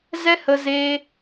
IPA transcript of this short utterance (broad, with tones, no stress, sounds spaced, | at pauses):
z ɛ˦ h ə˧ z eː˧